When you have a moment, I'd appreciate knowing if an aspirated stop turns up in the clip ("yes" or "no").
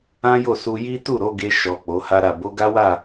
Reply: no